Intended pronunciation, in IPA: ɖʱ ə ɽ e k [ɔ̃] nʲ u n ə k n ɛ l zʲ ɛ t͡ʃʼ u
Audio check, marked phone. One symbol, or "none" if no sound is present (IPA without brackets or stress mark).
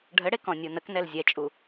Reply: ɔ̃